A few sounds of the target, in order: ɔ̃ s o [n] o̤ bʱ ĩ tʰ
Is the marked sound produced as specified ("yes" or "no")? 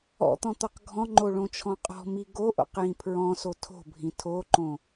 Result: no